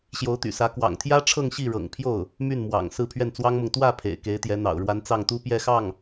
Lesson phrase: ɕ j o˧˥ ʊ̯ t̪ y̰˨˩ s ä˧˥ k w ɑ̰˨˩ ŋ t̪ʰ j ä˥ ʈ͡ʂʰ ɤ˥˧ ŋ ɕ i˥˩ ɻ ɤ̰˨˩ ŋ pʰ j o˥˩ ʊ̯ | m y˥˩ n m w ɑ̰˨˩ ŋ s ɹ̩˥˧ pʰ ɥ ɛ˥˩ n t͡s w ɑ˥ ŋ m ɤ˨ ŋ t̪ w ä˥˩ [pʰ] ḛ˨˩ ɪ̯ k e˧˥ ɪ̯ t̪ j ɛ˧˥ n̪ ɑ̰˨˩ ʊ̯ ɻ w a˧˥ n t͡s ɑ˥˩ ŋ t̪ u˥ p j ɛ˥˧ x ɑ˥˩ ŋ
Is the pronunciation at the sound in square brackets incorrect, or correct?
correct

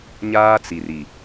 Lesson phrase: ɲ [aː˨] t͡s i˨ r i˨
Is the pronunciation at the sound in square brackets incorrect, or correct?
incorrect: aː˦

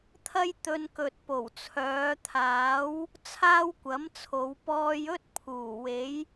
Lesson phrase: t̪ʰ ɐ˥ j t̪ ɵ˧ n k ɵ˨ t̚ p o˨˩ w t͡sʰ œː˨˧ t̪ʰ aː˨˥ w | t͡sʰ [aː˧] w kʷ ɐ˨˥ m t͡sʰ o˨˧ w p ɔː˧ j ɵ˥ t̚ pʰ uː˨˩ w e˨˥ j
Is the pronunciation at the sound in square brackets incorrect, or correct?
incorrect: aː˥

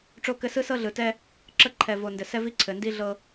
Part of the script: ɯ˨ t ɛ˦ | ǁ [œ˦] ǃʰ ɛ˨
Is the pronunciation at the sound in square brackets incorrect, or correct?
incorrect: ə˦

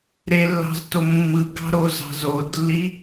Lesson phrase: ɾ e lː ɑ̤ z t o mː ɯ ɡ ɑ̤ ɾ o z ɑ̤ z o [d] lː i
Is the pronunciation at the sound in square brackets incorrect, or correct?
correct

